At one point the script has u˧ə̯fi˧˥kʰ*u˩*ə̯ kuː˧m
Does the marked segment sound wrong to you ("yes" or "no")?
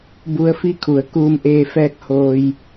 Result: yes